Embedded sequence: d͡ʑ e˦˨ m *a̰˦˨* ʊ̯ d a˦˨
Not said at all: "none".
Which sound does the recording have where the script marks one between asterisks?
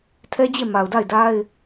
a˨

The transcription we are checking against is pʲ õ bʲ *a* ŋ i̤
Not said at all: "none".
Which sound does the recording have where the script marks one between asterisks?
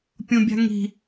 a̤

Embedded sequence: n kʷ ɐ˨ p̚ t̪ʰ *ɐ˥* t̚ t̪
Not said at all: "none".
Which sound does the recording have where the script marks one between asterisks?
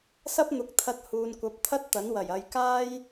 ɐ˥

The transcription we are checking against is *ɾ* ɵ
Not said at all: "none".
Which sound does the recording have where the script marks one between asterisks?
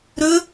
ɾ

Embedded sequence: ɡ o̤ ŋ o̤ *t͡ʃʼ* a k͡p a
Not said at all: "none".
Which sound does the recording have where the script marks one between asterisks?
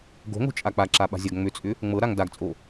t͡ʃʼ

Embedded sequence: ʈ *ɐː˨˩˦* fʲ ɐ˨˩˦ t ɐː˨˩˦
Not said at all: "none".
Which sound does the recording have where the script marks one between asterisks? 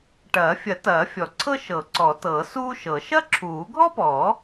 ɐː˨˩˦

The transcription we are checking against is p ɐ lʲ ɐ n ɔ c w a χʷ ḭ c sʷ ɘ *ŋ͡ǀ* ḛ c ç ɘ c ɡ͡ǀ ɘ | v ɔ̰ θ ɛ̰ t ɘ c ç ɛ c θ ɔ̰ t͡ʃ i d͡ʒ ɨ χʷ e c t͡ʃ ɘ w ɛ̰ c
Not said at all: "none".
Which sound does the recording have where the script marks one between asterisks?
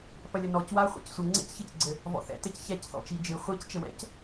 ŋ͡ǀ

